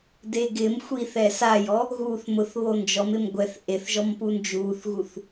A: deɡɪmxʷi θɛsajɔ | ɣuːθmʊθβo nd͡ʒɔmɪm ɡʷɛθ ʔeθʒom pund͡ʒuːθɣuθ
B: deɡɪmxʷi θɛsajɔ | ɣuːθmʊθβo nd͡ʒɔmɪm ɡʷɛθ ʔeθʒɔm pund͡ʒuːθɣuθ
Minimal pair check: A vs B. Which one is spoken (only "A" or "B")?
B